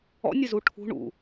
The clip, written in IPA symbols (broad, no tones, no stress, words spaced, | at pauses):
ɔ̰nʲɪzu ʈʰṳ ɳṵ